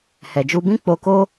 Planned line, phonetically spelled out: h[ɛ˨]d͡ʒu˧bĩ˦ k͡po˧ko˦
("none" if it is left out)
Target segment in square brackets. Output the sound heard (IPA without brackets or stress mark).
ɛ˨